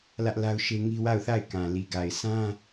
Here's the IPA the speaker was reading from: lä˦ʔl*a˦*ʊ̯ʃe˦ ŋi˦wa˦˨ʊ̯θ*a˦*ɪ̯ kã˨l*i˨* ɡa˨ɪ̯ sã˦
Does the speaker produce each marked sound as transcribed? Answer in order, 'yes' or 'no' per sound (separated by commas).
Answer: yes, no, yes